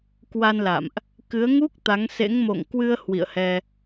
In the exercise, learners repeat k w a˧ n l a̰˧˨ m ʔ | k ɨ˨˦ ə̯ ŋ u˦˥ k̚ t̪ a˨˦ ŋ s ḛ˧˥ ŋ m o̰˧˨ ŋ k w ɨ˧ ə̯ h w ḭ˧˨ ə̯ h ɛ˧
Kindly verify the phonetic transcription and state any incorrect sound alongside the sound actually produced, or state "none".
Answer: none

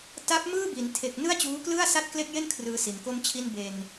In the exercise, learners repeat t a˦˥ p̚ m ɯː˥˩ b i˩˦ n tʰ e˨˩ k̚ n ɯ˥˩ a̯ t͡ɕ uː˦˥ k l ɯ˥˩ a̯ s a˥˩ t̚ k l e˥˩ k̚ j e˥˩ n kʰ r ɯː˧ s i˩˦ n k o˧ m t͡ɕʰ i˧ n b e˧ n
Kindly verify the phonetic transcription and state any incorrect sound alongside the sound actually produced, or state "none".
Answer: none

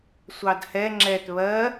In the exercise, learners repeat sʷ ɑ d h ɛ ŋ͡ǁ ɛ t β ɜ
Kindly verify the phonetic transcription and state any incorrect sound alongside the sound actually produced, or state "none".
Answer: none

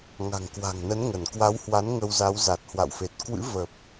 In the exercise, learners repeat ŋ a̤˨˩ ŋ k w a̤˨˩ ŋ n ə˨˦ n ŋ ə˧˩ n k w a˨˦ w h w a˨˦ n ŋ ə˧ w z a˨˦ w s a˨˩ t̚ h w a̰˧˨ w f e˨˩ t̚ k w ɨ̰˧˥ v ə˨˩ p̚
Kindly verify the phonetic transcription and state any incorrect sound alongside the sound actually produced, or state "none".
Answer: s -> z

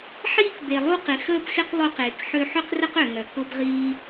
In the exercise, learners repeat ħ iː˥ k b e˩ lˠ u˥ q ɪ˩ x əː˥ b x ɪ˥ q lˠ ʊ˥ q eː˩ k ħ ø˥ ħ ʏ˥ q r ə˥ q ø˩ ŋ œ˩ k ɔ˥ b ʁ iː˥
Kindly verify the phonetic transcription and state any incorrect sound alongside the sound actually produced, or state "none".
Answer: ɔ˥ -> ʊ˥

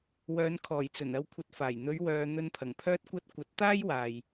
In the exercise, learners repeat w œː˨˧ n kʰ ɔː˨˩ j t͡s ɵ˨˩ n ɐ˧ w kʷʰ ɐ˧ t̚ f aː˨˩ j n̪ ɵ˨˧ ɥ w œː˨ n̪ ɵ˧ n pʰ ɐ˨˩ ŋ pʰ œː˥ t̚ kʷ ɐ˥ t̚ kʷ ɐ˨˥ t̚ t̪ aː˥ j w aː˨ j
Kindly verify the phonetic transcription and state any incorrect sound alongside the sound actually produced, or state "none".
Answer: none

